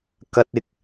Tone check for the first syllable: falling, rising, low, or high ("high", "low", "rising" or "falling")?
high